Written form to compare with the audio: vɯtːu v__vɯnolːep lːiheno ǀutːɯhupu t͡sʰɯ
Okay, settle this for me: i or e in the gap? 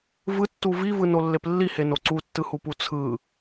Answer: i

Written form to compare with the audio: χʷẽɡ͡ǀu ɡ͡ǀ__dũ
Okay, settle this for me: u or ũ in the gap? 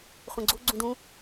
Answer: ũ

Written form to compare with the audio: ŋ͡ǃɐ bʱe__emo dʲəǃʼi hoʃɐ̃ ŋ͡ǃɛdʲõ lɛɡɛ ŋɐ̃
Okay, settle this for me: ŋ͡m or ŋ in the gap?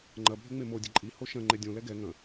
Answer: ŋ͡m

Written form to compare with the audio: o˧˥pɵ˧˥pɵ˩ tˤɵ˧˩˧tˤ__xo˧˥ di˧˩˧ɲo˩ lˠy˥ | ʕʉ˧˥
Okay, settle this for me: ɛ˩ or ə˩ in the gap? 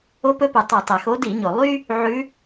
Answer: ɛ˩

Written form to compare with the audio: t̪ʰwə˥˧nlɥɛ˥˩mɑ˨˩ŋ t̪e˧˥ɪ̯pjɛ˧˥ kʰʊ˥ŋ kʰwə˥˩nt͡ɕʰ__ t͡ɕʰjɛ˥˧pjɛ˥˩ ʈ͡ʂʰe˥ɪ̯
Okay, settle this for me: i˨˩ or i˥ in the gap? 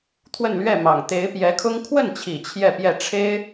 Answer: i˨˩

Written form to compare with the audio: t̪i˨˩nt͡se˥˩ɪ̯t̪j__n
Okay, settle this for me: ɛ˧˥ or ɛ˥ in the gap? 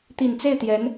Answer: ɛ˧˥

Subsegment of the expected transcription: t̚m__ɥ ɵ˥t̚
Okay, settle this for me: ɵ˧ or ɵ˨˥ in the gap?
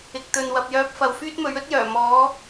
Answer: ɵ˨˥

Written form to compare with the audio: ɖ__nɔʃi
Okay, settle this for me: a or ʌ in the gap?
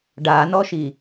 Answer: a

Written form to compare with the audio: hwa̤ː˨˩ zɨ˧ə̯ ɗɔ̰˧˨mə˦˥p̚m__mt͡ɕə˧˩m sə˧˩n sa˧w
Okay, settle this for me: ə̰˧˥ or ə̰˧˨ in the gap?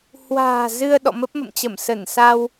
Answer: ə̰˧˨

